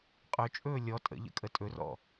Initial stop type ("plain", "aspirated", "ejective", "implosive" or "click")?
ejective